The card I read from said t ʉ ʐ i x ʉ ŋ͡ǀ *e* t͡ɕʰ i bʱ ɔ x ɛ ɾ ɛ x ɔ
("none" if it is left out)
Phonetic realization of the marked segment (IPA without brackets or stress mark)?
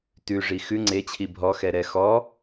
e